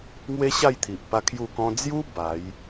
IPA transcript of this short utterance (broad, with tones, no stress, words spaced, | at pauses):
ŋwe˦ɕa˥˧jt̪ʰi˨ʔpa˧ kʰju˥˧kɔ̃˦ d͡zju˦ ba˨˦j